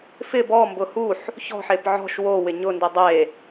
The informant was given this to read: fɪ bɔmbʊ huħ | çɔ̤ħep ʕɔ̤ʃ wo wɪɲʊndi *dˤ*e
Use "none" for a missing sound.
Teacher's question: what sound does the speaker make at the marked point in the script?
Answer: dˤ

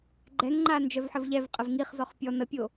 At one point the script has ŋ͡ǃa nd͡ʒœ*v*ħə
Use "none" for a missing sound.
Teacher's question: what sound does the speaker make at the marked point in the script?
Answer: v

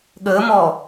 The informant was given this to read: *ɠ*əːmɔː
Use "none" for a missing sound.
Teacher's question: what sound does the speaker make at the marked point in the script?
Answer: ɠ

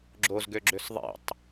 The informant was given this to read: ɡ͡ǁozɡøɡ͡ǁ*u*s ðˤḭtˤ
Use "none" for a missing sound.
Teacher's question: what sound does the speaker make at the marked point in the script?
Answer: ø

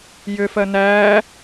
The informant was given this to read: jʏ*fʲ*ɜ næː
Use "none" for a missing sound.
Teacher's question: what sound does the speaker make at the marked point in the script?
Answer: f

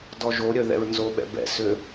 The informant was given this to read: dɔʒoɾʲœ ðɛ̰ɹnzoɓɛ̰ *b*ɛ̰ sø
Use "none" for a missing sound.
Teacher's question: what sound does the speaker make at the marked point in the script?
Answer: b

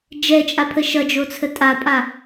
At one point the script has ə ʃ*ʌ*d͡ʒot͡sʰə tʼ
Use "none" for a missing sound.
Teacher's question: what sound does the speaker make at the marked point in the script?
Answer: ʌ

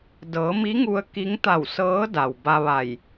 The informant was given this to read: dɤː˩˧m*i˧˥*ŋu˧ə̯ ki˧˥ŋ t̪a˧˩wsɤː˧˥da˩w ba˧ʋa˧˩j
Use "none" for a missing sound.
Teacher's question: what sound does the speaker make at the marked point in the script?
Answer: i˧˥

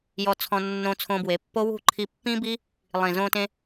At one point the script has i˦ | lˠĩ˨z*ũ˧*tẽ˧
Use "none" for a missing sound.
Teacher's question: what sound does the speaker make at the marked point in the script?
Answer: õ˧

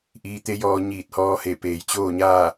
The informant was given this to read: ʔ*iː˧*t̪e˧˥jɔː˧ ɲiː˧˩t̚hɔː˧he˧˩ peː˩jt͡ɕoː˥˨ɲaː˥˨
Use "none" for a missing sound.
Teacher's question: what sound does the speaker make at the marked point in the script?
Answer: iː˧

